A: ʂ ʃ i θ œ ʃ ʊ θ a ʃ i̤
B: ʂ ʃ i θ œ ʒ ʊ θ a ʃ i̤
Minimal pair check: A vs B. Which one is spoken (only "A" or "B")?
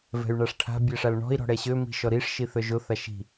B